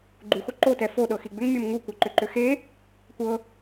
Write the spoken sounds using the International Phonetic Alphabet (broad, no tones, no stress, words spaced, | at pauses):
ɡ͡ǃuxo ǃotɛ foɗɤxi ɡ͡bʏŋmʲɤm ŋukʷɤǃʏǃʏ xe | kʷɤ